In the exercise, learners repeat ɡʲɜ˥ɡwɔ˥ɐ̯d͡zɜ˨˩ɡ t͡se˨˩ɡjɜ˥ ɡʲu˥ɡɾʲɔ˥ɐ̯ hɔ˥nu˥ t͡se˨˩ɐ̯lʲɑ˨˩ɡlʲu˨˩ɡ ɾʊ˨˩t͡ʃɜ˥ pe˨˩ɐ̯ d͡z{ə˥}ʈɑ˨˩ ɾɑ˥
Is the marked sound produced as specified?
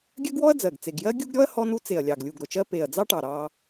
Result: no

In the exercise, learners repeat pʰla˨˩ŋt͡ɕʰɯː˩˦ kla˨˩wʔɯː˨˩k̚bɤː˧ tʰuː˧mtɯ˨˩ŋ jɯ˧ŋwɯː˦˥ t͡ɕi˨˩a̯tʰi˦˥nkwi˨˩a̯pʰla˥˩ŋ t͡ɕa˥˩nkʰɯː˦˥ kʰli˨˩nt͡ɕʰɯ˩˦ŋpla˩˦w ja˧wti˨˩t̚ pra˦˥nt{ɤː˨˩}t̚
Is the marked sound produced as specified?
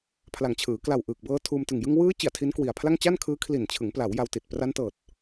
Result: yes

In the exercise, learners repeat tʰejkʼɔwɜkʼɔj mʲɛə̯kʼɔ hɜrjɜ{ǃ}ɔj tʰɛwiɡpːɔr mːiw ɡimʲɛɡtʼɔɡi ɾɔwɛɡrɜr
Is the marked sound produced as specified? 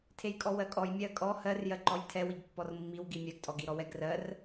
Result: yes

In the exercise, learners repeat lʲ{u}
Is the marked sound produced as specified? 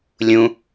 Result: no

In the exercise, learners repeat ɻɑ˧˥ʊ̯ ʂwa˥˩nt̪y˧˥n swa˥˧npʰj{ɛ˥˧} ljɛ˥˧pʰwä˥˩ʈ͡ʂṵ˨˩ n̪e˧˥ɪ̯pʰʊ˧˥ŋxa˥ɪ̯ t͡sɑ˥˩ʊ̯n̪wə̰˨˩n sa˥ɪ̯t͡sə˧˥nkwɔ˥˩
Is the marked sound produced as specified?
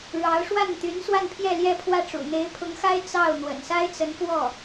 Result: yes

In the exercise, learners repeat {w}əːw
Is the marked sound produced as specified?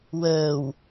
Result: yes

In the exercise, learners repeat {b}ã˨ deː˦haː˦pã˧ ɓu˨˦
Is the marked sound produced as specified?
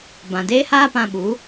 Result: yes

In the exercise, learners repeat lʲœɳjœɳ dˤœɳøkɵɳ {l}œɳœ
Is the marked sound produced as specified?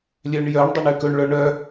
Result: no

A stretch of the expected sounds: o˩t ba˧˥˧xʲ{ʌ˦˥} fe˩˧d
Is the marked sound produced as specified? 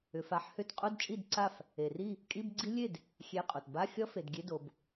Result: yes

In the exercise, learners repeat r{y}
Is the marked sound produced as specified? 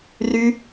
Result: yes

